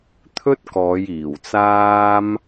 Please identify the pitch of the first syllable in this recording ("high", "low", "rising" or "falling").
high